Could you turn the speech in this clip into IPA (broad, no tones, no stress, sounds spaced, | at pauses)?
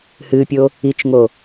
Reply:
h ɨ pʲ o | i t͡ʃ ŋ o